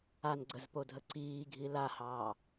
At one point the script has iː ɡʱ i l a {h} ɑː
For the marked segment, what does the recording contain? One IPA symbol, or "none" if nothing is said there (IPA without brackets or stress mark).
h